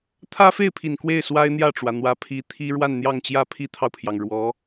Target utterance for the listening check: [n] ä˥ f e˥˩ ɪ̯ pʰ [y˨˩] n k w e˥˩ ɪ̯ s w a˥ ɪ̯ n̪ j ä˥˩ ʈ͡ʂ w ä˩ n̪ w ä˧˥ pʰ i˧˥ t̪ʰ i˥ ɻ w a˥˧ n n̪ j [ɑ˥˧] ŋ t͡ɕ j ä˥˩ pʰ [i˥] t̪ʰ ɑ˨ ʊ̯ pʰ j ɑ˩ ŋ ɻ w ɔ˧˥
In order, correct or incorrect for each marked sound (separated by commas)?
incorrect, incorrect, correct, correct